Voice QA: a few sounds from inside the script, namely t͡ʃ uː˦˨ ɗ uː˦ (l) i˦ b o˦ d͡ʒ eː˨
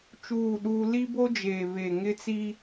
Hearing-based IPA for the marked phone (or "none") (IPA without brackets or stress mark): l